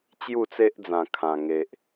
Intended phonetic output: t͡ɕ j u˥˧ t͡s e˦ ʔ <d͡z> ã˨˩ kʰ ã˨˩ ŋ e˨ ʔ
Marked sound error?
no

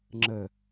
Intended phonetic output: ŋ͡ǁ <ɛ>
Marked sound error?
yes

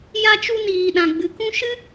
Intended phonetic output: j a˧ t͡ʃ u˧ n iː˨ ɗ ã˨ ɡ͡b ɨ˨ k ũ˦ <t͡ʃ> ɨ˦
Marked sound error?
yes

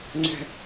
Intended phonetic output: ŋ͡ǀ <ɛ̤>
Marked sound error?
no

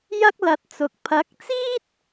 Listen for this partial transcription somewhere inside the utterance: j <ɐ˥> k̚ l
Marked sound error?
no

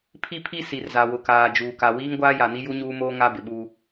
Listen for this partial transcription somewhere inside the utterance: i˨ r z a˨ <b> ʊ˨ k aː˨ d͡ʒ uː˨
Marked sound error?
yes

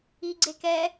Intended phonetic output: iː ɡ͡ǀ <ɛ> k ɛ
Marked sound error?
yes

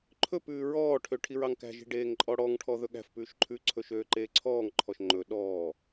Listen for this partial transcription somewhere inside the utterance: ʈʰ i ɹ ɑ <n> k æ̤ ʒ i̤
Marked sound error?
yes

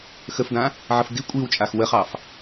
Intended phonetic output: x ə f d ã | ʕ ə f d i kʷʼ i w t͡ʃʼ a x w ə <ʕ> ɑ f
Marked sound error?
yes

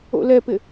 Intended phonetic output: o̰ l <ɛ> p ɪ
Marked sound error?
no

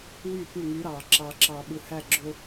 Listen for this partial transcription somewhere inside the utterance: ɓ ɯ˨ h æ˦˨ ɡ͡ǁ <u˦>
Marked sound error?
yes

